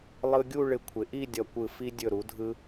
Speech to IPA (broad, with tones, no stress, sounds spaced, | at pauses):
lˠ ɯ˧ ɡʲ u˥˧ ɭ ɪ˧˩ kʷʰ ɪ˩˧ ʔ i˥˧ dʲ ʌ˧˩ kʷ ɯ˧˩ f i˧ dʲ ɵ˧˩ ɾ u˩˧ dʱ ɯ˧